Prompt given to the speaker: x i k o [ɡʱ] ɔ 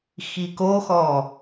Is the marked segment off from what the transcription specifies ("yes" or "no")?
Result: yes